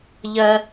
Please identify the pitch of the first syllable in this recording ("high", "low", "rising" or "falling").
high